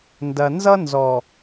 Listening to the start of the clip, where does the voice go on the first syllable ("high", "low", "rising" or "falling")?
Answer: low